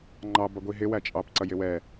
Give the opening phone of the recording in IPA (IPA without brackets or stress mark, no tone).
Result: ŋ͡ǃ